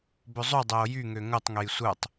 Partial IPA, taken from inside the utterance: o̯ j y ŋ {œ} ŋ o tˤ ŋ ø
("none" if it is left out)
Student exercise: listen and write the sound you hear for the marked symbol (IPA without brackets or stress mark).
ø